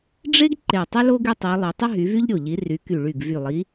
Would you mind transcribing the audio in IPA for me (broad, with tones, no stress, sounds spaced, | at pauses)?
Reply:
ɖ͡ʐ e˥ ɡ ǃ e˧˩ tˤ ʏ˥ l o˥ ɡ y˥ tˤ i˨˦ lˠ ø˨˦ tˤ ɪ˥ ɦ y˨˦ v y˥ ʎ ɾʲ o˧˩ ʎ i˨˦ r y˨˦ k y˧˩ ɭ y˧˩ ɡ v y˧˩ lˠ i˨˦